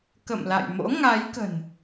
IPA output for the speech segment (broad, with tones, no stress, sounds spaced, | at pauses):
k ə̰˧˨ m l a̰˧˨ j m o̰˧˥ ŋ a˨˦ j k ə̤˨˩ n